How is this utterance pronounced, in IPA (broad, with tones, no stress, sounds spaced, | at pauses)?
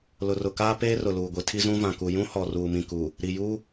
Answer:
l ʊ˨ r ʊ˨ k aː˦ p eː˦ r ʊ˨ l uː˨ ɡʷ i˨ tʰ i˦ z ũ˦ v ã˨ k u˨ j ũ˦ h ɔ˨ r uː˨ m ĩ˨ k u˨ | ɾ i˨ j u˦